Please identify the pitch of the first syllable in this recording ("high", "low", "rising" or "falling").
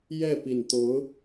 falling